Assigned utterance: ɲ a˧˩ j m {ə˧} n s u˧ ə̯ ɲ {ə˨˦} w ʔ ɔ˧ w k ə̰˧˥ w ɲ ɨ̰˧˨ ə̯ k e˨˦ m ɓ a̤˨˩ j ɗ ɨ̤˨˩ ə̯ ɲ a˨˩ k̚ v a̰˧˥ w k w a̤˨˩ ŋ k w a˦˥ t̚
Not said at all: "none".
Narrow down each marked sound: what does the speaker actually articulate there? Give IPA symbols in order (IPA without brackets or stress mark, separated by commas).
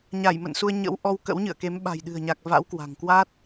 ə̰˧˨, ə̰˧˥